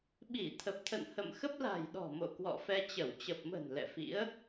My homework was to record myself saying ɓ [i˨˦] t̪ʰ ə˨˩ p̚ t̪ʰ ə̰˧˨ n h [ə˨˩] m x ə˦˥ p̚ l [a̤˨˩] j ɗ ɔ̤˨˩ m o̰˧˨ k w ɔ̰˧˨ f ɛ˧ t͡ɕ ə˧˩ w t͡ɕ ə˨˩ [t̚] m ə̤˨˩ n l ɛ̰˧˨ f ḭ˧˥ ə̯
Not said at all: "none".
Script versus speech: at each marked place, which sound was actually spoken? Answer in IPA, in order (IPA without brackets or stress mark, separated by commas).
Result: i˧˩, ə̰˧˨, a̤˨˩, p̚